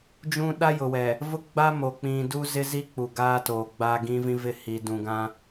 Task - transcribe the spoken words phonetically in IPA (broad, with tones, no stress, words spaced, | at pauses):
d͡ʒũ˦ ɗa˦jʊ˨wɛ˨ | vʊ˦ɡ͡ba˦ mo˨k͡pĩ˨ du˦zɪ˦ zi˦k͡pu˨ ɡaː˦toː˨ɡ͡baː˦ ɡĩ˦vĩ˦vɪ˦˨ hiː˨dũ˨ɡã˦